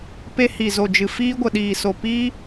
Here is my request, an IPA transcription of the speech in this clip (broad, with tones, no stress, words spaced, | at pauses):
pe˧hi˨zo˨d͡ʒɨ˨ fiː˧ɡʷə˨ɗiː˨so˨ pi˦